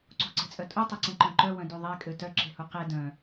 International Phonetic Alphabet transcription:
ǀ ṳ ǀ e̤ t͡sʼ œ tʼ u tˤ e ǀ ẽ ǃ œ̃ ǃ œ w œ̃ d y ðˤ e kʼ ø t œ ǁ e̤ h u q e d œ̃

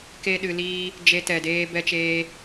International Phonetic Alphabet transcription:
k e˦ ɗ ɨ˧ l iː˦ | d͡ʒ e˧ t ɛ˨ d eː˧ b ɛ˧ t͡ʃ eː˧

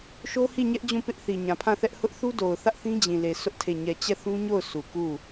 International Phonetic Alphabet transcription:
ʃ o˦ h i˦˨ ɲ ɛ˦ ʔ d͡ʑ ũ˦˨ p ɪ˦ ʔ θ i˨ ɲ ã˨ pʰ ã˦˨ θ ɛ˦ ʔ h ʊ˦ ʔ θ u˦ d o˨ ʊ̯ θ ä˦ ʔ θ ĩ˦ d͡ʑ ĩ˨ l e˨ s ʊ˦ ʔ tʰ e˦˨ ɲ ɛ˦˨ t͡ɕ ɛ˦˨ θ ũ˦ ɲ o˦˨ ʊ̯ s u˨ k u˦˨

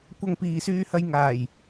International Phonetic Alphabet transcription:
kʷ ɐ˧ ŋ p iː˨ s yː˧ h ɐ˧ j ŋ aː˨˩ j

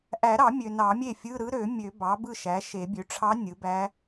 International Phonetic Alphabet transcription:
ʔ æ˨˩˦ ɾ ɑ˨˩˦ mʲ ø˨ n ɑ˨˩˦ mʲ e˥˩ fʲ ɯ˧˥˧ ɾ ɯ˧˥ ɾ ø˨˩˦ mʲ ø˨˩˦ b ɑ˩˥ b ɯ˥˩ ʃ æ˩˥ ʃ e˨˩˦ bʲ ø˩˥ ʈ͡ʂʰ ɑ˧˥ nʲ ɯ˩˥ b æ˧˥

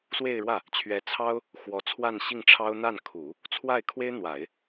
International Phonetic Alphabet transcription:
s w e˥˧ ɪ̯ ɻ w ä˥˩ | t͡ɕʰ ɥ ɛ˧˥ t͡sʰ ɑ˥ ʊ̯ | x w ɔ˧˥ t͡sʰ w a˥˧ n ɕ i˥˩ ŋ ʈ͡ʂʰ ɑ˥ ʊ̯ n̪ a˥˩ n kʰ u˨˩˦ | t͡sʰ w a˥˩ ɪ̯ kʰ w e˥ ɪ̯ n̪ w a˨˩˦ ɪ̯

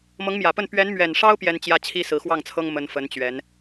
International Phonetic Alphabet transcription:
m ɤ˧˥ ŋ m j ä˨˩ p ə˥˩ n p ɥ ɛ˧˥ n m ɥ ɛ˨˩ n ʂ ɑ˥ ʊ̯ p j ɛ˥ n t͡ɕ j ä˥ t͡ɕʰ i˥ s ɹ̩˧˥ x w ɑ˥˩ ŋ t͡sʰ ɤ˥ ŋ m ə˥ n f ə˧˥ n t͡ɕ ɥ ɛ˧˥ n

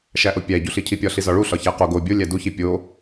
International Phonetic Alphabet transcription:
ʃ æ ʔ o pʲ æ ɟ u ɬ i cʰ i pʲ ɒ ɬ i z ɒ ɭ u ɬ ɒ ç æ q o ɡ o bʲ o lʲ æ d u ç i pʲ o

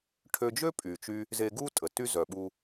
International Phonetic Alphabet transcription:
ʈʰ ø˧ d͡ʒ ø˥ pʼ y˩ t͡ʃ y˧ | z e˧ ɡ u˥ tʼ ə˩ t y˥ z œ˩ ɓ u˧

